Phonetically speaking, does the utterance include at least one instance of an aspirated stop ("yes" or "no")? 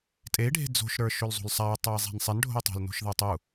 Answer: no